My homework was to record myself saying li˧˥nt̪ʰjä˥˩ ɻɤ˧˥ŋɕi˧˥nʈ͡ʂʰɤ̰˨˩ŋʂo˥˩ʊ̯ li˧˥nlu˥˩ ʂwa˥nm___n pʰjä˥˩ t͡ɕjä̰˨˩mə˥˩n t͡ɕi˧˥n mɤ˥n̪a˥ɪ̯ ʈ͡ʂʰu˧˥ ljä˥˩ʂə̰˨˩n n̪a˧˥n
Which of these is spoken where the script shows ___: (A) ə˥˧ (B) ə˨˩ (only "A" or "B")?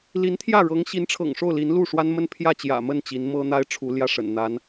A